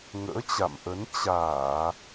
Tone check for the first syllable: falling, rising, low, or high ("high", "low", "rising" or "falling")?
rising